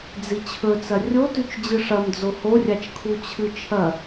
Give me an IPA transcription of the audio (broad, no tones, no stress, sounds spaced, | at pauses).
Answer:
d͡z i t͡ɕʰ ɵ t͡s ɐ rʲ o t ʉ t͡ʃ d͡ʑ ɨ ʂ ɐ m d͡z o h o rʲ a t͡ʃ kʰ u t͡ɕʰ ɨ t͡ʃʰ ɐ